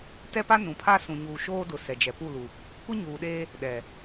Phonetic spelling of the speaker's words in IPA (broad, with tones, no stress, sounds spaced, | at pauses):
t ɛ˦ p a˦ n ũ˨ pʰ a˦ s ũ˨ ɲ uː˨ ʃ oː˦ d ʊ˨ s ɛ˨ d͡ʒ ɛ˨ p u˦˨ l u˨ | kʷ i˦ ɲ uː˨ ɗ eː˦ | ɗ ɛ˨